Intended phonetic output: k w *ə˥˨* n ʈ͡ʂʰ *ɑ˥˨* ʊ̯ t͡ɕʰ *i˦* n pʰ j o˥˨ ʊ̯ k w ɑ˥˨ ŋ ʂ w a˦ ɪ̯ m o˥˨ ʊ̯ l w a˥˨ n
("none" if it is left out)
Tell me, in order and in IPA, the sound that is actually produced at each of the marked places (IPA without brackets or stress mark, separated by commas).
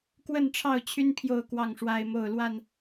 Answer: ə˥˨, ɑ˥˨, y˦